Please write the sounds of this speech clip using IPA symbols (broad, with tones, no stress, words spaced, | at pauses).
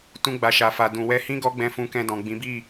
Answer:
tũ˧ɡ͡ba˨ʃa˨fa˨ dũ˨wɛ˧hĩ˦ ɡɔ˦ɡ͡bɛ̃˧fũ˧ kɛ̃˧dɔ̃˨ɡ͡bĩ˨˦ bi˦˨